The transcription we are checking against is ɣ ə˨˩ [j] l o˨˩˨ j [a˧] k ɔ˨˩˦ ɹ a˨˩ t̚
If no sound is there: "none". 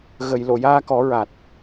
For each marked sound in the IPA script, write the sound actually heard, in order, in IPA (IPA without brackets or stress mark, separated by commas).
j, aː˧